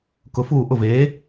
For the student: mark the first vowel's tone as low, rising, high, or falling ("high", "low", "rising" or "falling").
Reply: rising